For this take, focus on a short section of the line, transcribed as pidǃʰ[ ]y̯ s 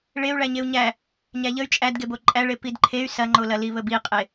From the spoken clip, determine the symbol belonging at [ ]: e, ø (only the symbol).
e